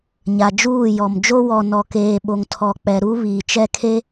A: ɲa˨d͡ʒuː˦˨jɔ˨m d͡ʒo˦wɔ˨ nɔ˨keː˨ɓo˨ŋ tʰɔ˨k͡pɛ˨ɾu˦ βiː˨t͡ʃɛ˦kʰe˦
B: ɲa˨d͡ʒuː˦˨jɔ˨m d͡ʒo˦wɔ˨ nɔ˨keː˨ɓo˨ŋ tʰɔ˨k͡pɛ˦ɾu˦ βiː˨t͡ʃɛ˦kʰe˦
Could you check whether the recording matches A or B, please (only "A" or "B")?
A